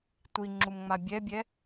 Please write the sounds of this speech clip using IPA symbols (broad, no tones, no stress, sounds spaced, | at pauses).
tʷ i ŋ͡ǁ u m ŋ͡m a bʲ ɛ bʲ ɛ